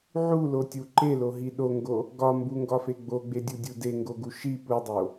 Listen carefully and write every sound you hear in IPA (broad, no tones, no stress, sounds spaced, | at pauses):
ʕ u l o tʲ u ǃ e l o ɦ i ɗ o ŋ ɡ o | ɡ ɒ m b u ŋ ɡ ɒ f e ɡ͡b o ɡ͡b e dʲ u dʲ u d e ŋ ɡ o ɡ u ʃ i p u dˤ o